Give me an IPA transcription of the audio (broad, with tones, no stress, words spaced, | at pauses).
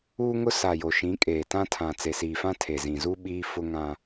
uː˦ŋʊ˦ sa˨ jo˨ʃĩ˨˦kʼeː˨ tã˦tʰã˨ t͡se˨siː˨fã˦ tʰe˨zĩ˨zu˦ ɓiː˦fʊ˦ ŋã˦